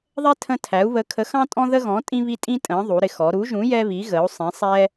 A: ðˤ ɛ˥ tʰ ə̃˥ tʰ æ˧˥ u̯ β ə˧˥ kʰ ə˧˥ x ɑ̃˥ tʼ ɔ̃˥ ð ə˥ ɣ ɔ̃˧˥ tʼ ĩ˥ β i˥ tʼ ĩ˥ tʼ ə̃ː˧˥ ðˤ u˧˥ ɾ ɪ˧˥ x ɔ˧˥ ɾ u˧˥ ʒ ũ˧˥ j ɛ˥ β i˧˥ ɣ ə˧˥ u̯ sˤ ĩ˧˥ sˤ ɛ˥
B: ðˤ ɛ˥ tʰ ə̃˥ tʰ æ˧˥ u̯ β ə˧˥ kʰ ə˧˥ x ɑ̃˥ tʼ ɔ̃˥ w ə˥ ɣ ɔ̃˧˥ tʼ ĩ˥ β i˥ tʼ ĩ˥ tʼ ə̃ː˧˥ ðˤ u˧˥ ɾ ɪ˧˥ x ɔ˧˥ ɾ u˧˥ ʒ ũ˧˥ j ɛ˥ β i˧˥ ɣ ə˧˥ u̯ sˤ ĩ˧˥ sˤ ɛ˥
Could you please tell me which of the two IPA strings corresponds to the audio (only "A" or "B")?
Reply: A